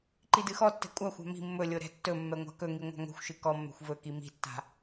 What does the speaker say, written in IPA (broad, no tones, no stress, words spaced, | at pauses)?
ǃidɨxɔtːɛ̤ kʷʼaxʷa̤ mi̤ mːɵlʲo ɾɛ̤tːɵmːɛ ŋʷa̤kɵŋi ŋʷa̤ŋo̤xʷʃɨ kɔmːɛ̤xʷ vɵki mi̤tːa̤